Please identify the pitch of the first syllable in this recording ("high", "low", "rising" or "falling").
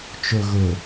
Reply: low